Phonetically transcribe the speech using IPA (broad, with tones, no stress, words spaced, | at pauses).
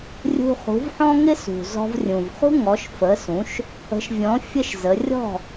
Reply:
rʲṳ˧χṳ˩˥vħɔ̃˥ ŋɪ˥sṳ˩ zɔ̤˧vrʲũ˩vχṳ˥ ŋɔ˩˥ʃfə˩˥sũ˩˥ʃ | ə̤˩˥ʃvʲɔ̃˩˥ fʲə˥ʃzə˩˥ rʲɔ̤˥˩